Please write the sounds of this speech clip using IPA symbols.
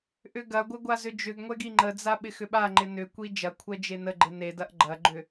ʔʏɡɐɡʷɪ ɡʷazʏd͡ʒʏɡŋʷɛ ɡiŋ͡ǃəd͡za ɓɪxʏɓaŋ͡ǃɪ nʏkʷi d͡ʒɐkʷʰɛ d͡ʒenəɡ͡ǃɪ nedɐʔ ɡ͡ǃɐɡ͡ǃʏ

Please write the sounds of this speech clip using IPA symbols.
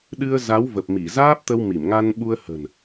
ɗɨ˧ə̯za˨˦w və˨˩p̚ mi˧˩zaː˦˥p̚t̪ə˧w mi˧˩mŋa˧nɓu˧ə̯ hə̤˨˩n

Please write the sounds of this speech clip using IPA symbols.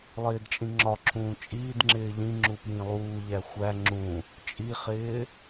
lˠɪːdt͡ʃʼĩŋ͡ǁɒǁʰũː t͡ʃʼiːdŋ͡ǁɪː ʎĩŋ͡ǁu pjĩlˠuːʎæ xʷæ ŋ͡ǁũ | t͡ʃʼiχɪː

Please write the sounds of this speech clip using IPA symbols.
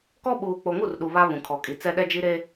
kɔ˦ ɓuː˨k͡po˨ŋu˦˨rɗu˨ βa˦βũ˨ kʰɔ˨kʼi˨ t͡sɛ˦ɗɛ˦d͡ʒi˦ ɾe˦

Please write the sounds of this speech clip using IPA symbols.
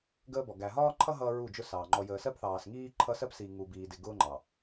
ɡəː˦bɔ˨ ɡæ˨ɦɒː˦ǃʰʌ˦ ɦʌː˦ɹu˦˨d͡ʒʊ˦sɑː˨ ŋ͡ǃɔ˨jəː˨sɜ˦p θɑː˨sŋiː˦ ǃʰʌ˦ sɜ˦psiː˨ ŋu˨biː˨dɪ˨ ɡʊː˦ŋ͡ǃɑ˨

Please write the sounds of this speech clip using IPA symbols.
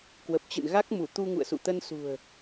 kwə˨˩p̚t͡ɕɨ̰˧˨nɣa˦˥k̚mu˧˩ t̪u˧ŋṵ˧˨ə̯sṵ˧˨t̪ə˧n sṳ˨˩ə̯

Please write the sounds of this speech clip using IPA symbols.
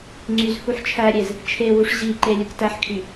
ŋ͡ǀyz huħt͡ʃʰæɾʲez | t͡ʃʰewuʂ ʑiǃe lʲɯktæħkʰy

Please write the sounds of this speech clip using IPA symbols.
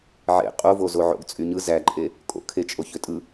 ʕḛ qʼovo zoʕo̰ɡt͡sʼyɲɯ zæǃʼe | kʼo̰kʰet͡ʃʼo çøtʼɯ

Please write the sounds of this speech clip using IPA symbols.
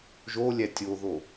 ʒolʲæ tʲoðo

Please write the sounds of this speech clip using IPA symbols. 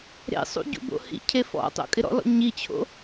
ɾḛsˤṵ ɟṵbo̰hḭcʰe fɔ̰tˤo̰ kʼɪɾɔ̰lɔ̰ ɲit͡ɕʰo̰

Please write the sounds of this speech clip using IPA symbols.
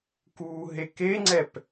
kuːɦekeŋ͡ǀɛp

